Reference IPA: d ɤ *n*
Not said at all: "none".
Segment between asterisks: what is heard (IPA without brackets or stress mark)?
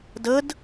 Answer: d